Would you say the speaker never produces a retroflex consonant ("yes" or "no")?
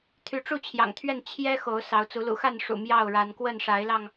no